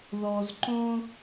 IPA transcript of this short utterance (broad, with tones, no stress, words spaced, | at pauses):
ðɔ˨zǃõ˦